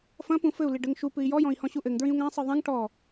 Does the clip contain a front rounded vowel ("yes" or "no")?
no